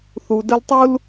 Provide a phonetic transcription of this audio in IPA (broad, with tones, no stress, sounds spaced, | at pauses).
θ u˨ d ə˦ l tˤ u˥ l